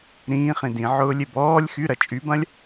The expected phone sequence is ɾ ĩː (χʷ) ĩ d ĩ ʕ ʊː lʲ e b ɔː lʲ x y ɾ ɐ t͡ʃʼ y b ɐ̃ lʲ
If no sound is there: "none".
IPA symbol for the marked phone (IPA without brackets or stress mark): χ